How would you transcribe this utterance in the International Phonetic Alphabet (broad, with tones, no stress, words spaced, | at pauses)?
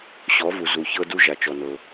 ɕɔ˨˥vu˨ zu˨çɤ˥du˥ ʒa˨t͡ʃɔ˨nɤ˨